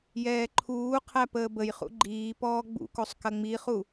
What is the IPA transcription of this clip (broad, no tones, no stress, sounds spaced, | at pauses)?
j ɛː ǃʰ uː qʰ æ p əː b ə j χ ṵ ɡ͡ǃ iː p ɔː ɡ͡b ṵ k o sˤ k ɐ ŋ͡m i χ u